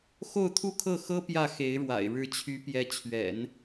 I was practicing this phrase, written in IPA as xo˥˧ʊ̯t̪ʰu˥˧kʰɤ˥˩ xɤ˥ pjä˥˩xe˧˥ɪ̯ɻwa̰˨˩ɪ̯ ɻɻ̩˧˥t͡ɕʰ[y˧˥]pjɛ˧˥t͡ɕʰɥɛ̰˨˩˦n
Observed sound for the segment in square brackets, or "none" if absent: y˧˥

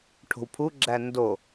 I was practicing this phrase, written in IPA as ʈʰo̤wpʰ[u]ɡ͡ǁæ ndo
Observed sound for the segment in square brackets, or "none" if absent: u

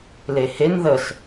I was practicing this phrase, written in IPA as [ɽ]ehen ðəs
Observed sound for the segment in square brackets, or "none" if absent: l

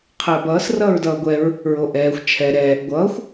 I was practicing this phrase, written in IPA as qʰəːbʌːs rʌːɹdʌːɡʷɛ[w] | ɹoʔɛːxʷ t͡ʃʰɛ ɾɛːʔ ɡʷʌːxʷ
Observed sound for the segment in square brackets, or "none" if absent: ɹ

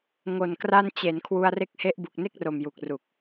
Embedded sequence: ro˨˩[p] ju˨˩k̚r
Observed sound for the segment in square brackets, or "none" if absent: m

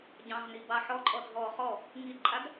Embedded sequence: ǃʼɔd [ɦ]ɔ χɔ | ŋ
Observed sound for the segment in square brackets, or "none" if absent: ɦ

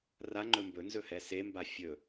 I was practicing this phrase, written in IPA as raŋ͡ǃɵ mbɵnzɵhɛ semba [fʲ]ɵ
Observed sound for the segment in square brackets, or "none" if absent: fʲ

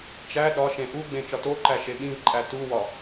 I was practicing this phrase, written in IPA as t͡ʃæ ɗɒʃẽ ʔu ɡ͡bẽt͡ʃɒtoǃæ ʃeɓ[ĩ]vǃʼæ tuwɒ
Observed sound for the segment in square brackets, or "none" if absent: ĩ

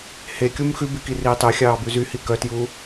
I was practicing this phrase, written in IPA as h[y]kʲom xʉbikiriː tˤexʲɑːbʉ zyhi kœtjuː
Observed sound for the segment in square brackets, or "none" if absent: e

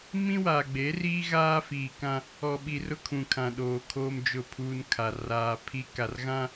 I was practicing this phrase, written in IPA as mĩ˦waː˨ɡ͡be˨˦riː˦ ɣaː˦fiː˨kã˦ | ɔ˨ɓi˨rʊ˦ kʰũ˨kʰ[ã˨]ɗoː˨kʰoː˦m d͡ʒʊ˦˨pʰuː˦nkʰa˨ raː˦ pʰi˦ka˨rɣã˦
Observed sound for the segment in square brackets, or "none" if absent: ã˨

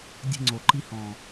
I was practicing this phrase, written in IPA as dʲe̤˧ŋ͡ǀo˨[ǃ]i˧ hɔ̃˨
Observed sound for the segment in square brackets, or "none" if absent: ǃ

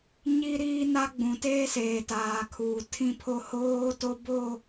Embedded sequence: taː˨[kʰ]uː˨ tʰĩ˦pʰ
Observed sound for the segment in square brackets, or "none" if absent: kʰ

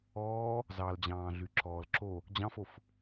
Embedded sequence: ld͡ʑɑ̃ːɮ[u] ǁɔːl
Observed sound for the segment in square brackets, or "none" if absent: y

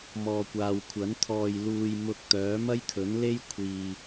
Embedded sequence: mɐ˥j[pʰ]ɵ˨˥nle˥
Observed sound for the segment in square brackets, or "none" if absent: t̪ʰ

